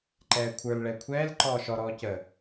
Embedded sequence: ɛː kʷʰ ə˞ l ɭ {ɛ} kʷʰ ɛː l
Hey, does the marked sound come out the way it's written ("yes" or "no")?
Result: yes